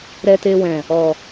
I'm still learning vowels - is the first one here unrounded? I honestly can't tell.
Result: yes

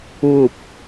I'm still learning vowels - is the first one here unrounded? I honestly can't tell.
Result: no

